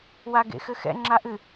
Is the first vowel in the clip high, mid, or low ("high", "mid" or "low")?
low